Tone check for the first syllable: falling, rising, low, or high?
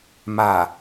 low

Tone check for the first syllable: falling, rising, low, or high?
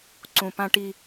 low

